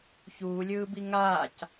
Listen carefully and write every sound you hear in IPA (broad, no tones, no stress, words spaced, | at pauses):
çuːlʲɯːbi ŋaːc